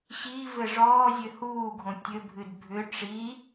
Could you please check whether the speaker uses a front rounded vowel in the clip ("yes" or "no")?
yes